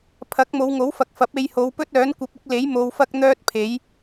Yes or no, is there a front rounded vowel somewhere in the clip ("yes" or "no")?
yes